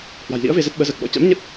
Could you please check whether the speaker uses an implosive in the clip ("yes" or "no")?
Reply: yes